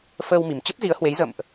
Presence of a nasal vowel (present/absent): absent